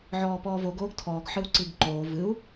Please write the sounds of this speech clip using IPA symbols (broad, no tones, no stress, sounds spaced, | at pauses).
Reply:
ʕ ɔː p ɔː v o ɡ oː ɡ tʰ ɔː ɡ ħ ɨ u̯ ǀ i ɡ ǃ oː v ɨ u̯